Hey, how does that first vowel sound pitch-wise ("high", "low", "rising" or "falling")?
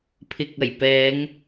low